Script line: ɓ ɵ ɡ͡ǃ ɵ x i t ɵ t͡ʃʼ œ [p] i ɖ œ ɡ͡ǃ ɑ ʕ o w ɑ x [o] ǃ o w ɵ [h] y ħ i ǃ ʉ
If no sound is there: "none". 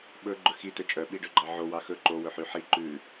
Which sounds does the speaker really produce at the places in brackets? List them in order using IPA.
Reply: ɓ, ɵ, ħ

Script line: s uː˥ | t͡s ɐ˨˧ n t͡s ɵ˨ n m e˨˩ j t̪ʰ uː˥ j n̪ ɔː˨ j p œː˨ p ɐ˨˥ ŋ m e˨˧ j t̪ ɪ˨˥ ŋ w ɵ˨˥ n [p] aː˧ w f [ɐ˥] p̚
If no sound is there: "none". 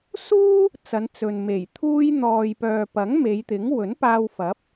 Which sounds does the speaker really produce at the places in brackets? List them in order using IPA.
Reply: p, ɐ˨˥

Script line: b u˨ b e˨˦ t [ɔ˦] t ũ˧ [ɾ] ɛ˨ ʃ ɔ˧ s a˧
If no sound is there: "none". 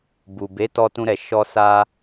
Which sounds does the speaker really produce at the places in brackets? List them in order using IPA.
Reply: ɔ˧, ɾ

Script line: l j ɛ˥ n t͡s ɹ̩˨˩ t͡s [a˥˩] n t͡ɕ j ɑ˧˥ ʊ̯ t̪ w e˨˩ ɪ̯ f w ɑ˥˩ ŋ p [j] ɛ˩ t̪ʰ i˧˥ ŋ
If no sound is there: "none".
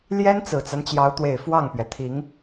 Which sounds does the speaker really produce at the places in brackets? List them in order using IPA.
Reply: a˦, ɥ

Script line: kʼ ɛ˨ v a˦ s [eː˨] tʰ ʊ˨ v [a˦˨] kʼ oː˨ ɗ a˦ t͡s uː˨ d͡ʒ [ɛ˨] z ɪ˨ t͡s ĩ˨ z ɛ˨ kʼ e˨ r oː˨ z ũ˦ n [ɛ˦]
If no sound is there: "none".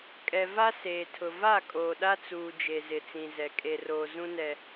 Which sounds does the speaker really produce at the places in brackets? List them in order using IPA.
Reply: eː˨, a˦˨, e˨, ɛ˦

